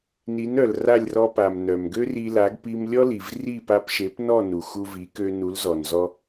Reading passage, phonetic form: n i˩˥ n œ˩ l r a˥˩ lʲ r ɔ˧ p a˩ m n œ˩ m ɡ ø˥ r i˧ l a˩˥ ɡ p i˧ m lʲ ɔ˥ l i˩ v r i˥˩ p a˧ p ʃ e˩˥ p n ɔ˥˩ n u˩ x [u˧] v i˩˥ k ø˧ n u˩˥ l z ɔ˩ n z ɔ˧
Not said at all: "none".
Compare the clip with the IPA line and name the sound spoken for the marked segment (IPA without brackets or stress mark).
u˧